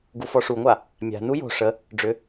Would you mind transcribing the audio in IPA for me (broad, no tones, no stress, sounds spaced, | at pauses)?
ɡ u f ɔ ʂ u ŋʷ a | mʲ a̤ n u j o̤ ʂ ə | ɖ͡ʐ ʏ